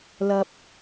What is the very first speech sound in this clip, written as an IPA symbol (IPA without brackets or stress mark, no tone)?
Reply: l